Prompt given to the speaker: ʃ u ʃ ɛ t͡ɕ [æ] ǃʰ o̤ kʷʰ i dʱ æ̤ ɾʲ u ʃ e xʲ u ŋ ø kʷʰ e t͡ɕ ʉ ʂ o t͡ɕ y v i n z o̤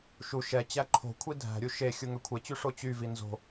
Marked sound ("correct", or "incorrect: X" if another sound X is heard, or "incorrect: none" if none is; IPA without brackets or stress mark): correct